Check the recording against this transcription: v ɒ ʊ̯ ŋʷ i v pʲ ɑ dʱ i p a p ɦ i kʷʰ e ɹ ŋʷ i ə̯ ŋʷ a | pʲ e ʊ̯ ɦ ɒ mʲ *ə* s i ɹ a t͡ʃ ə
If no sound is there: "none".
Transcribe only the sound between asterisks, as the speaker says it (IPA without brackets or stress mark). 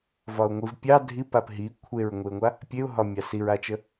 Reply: ɑ